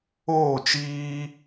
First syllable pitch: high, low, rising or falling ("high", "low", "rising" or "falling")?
falling